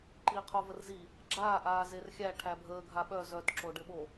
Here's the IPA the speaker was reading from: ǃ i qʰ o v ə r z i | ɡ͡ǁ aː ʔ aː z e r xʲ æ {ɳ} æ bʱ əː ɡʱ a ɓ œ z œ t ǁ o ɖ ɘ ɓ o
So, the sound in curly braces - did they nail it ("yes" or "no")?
no